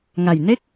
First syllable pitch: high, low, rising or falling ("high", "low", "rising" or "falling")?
low